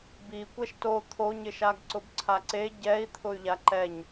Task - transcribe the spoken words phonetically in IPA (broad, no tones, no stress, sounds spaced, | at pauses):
b i kʷ ɛ ʃ t o t̪ʰ o ɲ ɪ ʃ a ɡ ǀ ʊ b ǀʰ a ǀ e ɟ ɛ i̯ t̪ʰ ʊ y̯ ʎ a ǃ ɛ ɲ